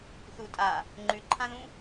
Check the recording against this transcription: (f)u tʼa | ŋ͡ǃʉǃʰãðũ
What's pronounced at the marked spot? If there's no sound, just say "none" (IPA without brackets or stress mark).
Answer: θ